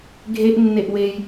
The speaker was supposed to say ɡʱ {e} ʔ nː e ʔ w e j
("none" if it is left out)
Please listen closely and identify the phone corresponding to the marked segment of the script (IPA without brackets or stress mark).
e